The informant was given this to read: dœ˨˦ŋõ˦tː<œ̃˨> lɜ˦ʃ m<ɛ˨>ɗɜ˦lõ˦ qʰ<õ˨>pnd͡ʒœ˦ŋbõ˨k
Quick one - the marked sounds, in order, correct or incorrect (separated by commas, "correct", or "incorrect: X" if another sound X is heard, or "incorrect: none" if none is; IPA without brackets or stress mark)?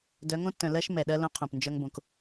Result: correct, correct, correct